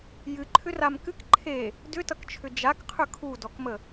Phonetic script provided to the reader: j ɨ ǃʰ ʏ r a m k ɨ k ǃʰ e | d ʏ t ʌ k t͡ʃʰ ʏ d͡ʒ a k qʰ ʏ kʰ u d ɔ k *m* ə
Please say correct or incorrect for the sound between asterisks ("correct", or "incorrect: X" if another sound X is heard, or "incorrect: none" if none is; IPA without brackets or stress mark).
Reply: correct